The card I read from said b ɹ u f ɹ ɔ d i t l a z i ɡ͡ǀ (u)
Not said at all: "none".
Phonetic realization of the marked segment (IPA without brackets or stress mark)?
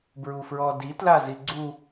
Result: u